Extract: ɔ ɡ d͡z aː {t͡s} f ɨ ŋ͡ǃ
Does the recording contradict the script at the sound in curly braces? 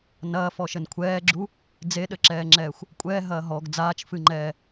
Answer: yes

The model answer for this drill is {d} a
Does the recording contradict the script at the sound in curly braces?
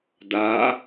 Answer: no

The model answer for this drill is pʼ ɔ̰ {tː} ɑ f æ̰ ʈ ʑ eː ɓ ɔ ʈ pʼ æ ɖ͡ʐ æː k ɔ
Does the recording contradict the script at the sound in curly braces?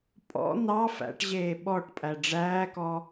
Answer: yes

